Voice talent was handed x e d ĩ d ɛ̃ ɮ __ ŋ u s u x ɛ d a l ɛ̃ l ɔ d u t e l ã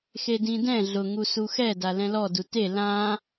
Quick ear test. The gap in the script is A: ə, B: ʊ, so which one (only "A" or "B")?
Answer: B